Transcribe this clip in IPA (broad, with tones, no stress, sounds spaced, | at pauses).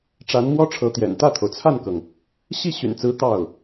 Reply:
ʈ͡ʂ a˧˥ n m w ɔ˥ ʈ͡ʂʰ ɤ˧˥ t̪ j ɛ̰˨˩ n t̪ ä˥˩ t̪ʰ o˩ ʊ̯ t͡sʰ a˥˩ n k ɤ˩ ŋ | ɕ i˥˩ ɕ y̰˨˩ n t͡s ɹ̩˧˥ t̪ ɑ˥˩ ʊ̯